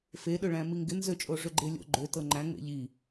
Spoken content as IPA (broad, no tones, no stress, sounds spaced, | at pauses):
f e ɗ ø ɭ æ̃ m i ŋ ɡ ɪ n z ø t͡ʃʼ o ʐ ø ɡ͡ǃ e lʲ o̰ ɡ͡ǃ ø t ɤ ŋ͡ǃ æ̃ ŋ͡m ḛ ʎ i